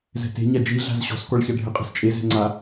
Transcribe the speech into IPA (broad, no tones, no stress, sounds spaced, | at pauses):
z ɛ̤ t e̤ ɲ a d͡ʒ i ɮ a̤ z ɕ ɔ̤ s k ɔ ɭ ç a ɖʱ ɪ qʼ ɛ̤ s t͡ʃʼ e z ɛ̤ ŋ͡ǀ a